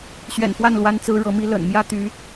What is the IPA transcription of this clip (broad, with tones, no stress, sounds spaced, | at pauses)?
ɕ ɥ ɛ̰˨˩ n f w a˥˩ n l w a˥ n t͡s ɹ̩˥ ɻ ɤ˧˥ m i˥ l ə̰˨˩ n m j ä˥ t̪ y˧˥